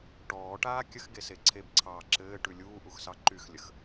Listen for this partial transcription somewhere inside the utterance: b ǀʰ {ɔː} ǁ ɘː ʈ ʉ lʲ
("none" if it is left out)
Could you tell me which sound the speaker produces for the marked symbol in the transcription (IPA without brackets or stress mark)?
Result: ɑː